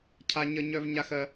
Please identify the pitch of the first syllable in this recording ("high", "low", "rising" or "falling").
high